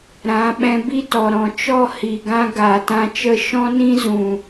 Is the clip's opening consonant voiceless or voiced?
voiced